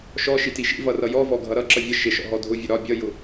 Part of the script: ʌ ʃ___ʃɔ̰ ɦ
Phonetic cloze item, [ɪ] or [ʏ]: ɪ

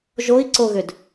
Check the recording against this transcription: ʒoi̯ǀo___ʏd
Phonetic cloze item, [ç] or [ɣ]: ɣ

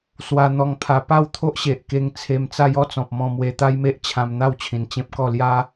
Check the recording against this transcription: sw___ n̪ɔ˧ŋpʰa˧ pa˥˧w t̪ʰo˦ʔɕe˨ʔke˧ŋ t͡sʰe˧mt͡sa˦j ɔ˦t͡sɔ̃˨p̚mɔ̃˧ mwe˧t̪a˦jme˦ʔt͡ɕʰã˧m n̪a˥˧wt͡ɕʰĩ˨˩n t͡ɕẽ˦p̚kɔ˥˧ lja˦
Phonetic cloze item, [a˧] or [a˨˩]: a˧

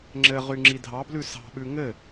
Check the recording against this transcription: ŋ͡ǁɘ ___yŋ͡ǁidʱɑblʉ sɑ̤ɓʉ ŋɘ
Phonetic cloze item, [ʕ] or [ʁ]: ʁ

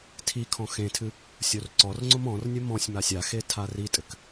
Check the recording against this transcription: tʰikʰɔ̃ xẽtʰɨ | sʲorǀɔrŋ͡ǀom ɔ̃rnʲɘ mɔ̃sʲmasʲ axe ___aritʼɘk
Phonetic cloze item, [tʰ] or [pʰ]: tʰ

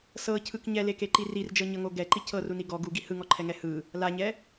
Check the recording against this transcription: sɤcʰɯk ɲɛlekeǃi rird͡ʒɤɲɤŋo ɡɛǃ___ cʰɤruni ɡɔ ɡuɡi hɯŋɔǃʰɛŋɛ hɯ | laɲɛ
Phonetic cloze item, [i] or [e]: i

